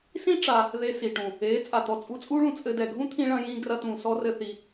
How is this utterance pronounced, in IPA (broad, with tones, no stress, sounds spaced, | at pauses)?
s ĩ˦ ʈ͡ʂ a˧ | ð e˧ s i˨ ʈ ũ˨ | eː˨˦ t͡sʼ a˨ t̪ ɔ˨ t͡sʼ u˧ t͡sʼ uː˦ ɭ ũ˨ t͡sʼ ɘ˦ d ɛ˧ ɡʱ ũ˦ t̪ʰ ĩ˧ ɭ ɐ̃˧ j ĩː˧ ɡ r ɐ˦ t̪ ũː˧ s ɔ˦ r ɘ˦ θ i˧